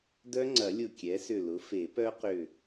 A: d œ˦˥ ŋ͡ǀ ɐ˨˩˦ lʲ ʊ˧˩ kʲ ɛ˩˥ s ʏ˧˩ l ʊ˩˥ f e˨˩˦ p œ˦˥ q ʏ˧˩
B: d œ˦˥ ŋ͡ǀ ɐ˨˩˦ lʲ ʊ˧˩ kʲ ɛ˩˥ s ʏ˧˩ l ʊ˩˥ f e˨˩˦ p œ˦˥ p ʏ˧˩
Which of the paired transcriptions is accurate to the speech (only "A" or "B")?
A